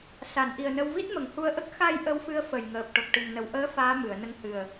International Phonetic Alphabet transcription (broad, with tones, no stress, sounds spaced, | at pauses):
s a˨˩˨ n ʔ i˨˩ ə̯ n ə˧ w v i˦˥ t̚ m ə˨˩˨ ŋ h u˧ ə̯ ʔ ə˦˥ k̚ x a˧ j ʔ ə˧˥ w f ɨ˧˥ ə̯ f ə˨˩ j ŋ əː˨˩ p̚ ʈ o˨˩ k̚ ʈ ɨ˨˩ ŋ n ə˨˩ w ʔ əː˧˥ f aː˧˥ m ɨ˨˩˨ ə̯ n ə˧ ŋ h ɨ˨˩ ə̯